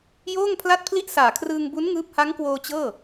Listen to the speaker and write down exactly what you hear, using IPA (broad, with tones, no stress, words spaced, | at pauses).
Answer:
joː˥˩ŋpʰla˥˩t̚pʰli˥˩ʔ saː˨˩kʰrɯː˧ŋbu˦˥n ŋɯː˥˩p̚ ha˦˥ŋkwoː˧ t͡ɕɤː˥˩